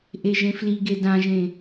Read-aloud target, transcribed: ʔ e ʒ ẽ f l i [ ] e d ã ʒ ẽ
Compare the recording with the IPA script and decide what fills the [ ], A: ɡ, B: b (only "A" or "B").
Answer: A